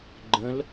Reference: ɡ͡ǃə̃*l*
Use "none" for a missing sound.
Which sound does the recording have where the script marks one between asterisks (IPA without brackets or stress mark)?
l